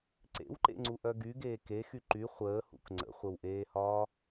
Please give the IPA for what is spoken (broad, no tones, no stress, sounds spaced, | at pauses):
ǀ ḛ w ǃ ḛ ŋ͡ǀ u ʔ œ ɡ y ɡ eː k e x y ǃ y χʷ əː h ṵ k ŋ͡ǀ ə̰ χʷ ə w ʔ eː h ɒː